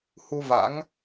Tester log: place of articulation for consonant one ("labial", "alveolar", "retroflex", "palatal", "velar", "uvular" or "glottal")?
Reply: glottal